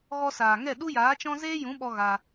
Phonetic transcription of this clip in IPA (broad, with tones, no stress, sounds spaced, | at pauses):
ɣ ɔ˧ s aː˨ ŋ ɛ˦˨ ɗ u˦ j aː˨˦ t͡ʃ ɔ̃˦ z eː˦ j ũ˨˦ ɓ ɔ˧ ɣ a˧